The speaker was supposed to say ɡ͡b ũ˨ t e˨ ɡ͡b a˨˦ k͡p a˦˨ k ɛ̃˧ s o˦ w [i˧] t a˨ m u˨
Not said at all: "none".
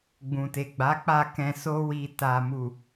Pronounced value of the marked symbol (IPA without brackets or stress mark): i˧